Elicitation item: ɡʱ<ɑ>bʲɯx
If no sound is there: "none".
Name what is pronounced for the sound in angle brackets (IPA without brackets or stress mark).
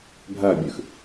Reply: ɐ